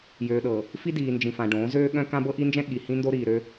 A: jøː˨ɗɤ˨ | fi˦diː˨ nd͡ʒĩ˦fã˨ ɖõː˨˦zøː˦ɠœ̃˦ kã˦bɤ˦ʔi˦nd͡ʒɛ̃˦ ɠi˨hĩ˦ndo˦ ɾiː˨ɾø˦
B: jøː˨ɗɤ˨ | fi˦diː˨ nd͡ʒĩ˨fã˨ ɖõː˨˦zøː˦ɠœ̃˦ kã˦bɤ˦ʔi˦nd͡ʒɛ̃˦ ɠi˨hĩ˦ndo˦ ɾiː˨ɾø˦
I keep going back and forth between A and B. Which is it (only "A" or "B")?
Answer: B